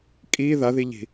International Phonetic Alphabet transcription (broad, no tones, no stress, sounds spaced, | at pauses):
kʼ i ð a ð i ʎ i̤